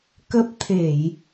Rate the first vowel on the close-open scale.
mid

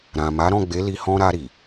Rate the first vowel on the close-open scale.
open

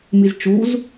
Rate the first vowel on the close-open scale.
close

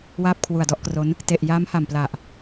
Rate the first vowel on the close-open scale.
open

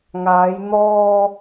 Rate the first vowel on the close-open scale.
open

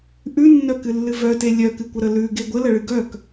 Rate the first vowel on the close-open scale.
close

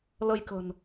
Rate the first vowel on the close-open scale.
mid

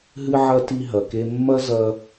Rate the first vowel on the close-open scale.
close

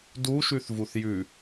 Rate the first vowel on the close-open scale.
close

